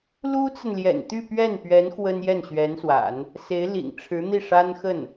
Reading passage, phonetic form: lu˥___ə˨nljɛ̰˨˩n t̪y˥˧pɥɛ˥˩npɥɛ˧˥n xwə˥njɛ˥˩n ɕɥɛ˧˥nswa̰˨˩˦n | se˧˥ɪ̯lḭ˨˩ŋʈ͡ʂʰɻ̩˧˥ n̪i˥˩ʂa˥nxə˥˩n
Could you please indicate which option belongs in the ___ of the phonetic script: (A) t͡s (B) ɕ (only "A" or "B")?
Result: A